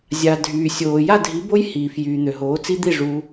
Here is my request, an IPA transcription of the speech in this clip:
zʲ a˨ dʱ yː˨ sʲ oː˨ j a˥˨ dʱ i˨˥ b o˦˥ j h iː˨ f j yː˨ n̪ ø˨ ɦ oː˨˥ t͡s i˦˥ d̪ i˥˨ ʐ u˦˥

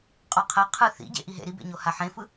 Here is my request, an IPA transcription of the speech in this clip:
qʼ ɔ qʰ ɛ qʰ ɯ θ ḭ ɟ ḛ ʔ i ɦ ḛ ɾ i b ḛ ɲ o h a ħ ẽ f ɯ

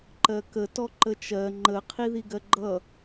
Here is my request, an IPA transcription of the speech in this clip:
ǃ ɜ k ə t ɔ ǃ ə t͡ʃ ɜ ŋ͡ǃ ə qʰ i ð i ɡ ɜ ɡ͡ǃ ʌ

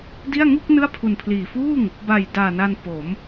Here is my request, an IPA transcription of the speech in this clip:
d i˥˩ a̯ ŋ u˥˩ k̚ n ɯ˥˩ a̯ pʰ u˨˩ n pʰ l iː˨˩ f uː˥˩ ŋ | b a˨˩ j d aː˨˩ n a˧ n p o˩˦ m

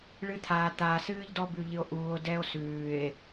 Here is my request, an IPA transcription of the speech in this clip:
ɭ ɨ˦ t̪ʰ aː˨ t̪ aː˨ s ɨː˦ ʎ d ɔ˦ b ʉ˨ ʎ ɨ˨ o̯ ʔ uː˨ o̯ d ɛ˦ o̯ s ʉː˨ e̯

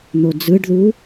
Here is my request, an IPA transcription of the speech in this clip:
n̪ o d͡z ɯ ɖ ð u

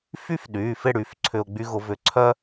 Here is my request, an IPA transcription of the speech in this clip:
f y˥ f ɗ yː˩˧˩ f ɪ˥˨ ɽ y˩˧˩ f ǀʰ ʏ˧ ʊ̯ ɡ͡b y˥ ɣ ʊ˧˥ v ʏ˧ ǀʰ œ˥

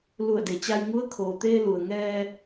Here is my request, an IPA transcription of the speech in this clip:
l u˧˩ ə̯ d e˩ t͡ɕ a˧ j ŋ u˧˥ ə̯ kʰ oː˩ t̪ eː˧ l u˩ ə̯ ŋ ɛː˧

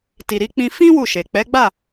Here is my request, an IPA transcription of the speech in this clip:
t i˨ ɾ i˧ k͡p ĩ˧ f ĩ˦ w u˦˨ ʃ e˨ k͡p ɛ˨˦ ɡ͡b a˦˨

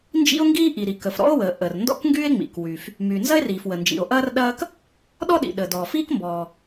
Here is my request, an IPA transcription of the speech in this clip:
n d͡ʒ ḭ˥ o̯ ŋ ɡ iː˥ ʔ i˩ ɾ i˩ k ə˩ f ɾ ɔ̰˥ o̯ w əː˩ ʔ ə˩ r n d ɔ̰˥ k ŋ ɡ yː˥ e̯ ŋ͡m ḭ˩ k w y˩ f | m yː˩ n z ɐ˥ e̯ r iː˩ f w ə˩ n d͡ʒ ḭ˩ o̯ ʔ ɐː˥ r ɗ ɐː˥ k | ɗ ɔ˥ ɗ ḭ˩ ɗ əː˩ d ɔː˩ f iː˥ k m b ɔː˩

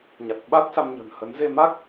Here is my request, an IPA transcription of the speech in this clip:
ɲ a˨˩ t̚ ɓ a˦˥ t̚ s a˧ m ɲ ə̤˨˩ n h ə˨˦ n z e˧ m a˦˥ k̚

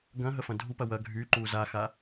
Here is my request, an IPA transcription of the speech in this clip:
ɡ ɐ̃ ɦ ə f ɐ̃ dʱ u p ɐ w ɐ ɡʱ y ǃ u z a x a

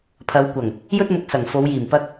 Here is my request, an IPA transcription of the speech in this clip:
pʰ ɐ˨˧ w kʷ ɐ˨˩ ŋ | j ɵ˥ t̚ m ʊ˧ k̚ s ɐ˨˩ ŋ f o˨˧ w j iː˨˩ m p ɐ˧ k̚

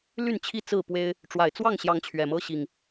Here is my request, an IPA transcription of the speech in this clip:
l y˥˨ n t͡ɕʰ i˥˨ t͡s ɹ̩˥˨ p w e˦ ɪ̯ | ʈ͡ʂ w a˨˩ ɪ̯ t͡s w ɑ˥˨ ŋ ɕ j ɑ˨˦ ŋ t͡ɕʰ ɥ ɛ˨˩ m ɤ˦ ɕ i˨˩ ŋ

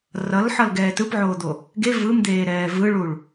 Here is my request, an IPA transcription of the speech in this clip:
r ʌ l ħ ʌ l ɡ ɛː t ɯ p ʕ oː d̪ o | ɡ e v ɯ m d̪ eː ɾ ɛː v ɯ ɭ u ɭ

